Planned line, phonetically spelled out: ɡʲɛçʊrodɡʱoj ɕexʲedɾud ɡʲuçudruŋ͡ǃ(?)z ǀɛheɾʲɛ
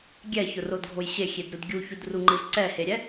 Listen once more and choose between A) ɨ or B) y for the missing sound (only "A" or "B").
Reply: A